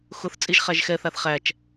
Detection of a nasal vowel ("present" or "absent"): absent